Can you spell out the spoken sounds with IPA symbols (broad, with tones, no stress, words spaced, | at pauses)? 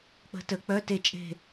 k͡pə̤˨˥tə˩˧ k͡pœ˧˥˧te˦˨t͡ʃʼe̤˦˨